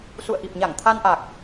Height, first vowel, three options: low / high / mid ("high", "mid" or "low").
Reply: high